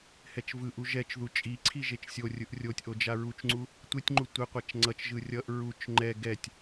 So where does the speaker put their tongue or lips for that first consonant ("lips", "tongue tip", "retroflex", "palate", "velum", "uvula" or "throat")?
throat